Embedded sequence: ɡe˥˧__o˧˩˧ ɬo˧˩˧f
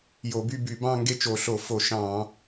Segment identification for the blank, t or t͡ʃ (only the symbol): t͡ʃ